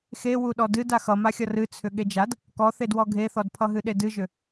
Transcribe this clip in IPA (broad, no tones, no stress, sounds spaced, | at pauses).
x e w u ɗ ɔ d ɨ d a x ʌ m a xʲ ʌ r ɨ t͡sʰ ʏ ɠ e d͡ʒ a d | k ɔ θ e d w ɔ ɡʱ e θ ɔ d pʰ ʌ ɦ ɨ ɗ e d ɨ ʒ ʏ